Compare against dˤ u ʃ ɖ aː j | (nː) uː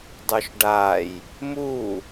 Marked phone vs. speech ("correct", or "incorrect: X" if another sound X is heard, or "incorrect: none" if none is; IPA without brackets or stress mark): incorrect: m